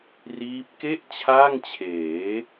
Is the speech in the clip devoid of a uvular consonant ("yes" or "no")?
yes